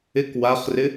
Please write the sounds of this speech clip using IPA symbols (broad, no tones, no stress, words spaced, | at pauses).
ɪk waχrɪ